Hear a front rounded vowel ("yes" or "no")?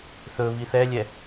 no